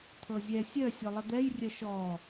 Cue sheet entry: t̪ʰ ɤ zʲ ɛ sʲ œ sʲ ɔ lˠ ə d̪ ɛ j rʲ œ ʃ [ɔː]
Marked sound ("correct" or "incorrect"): correct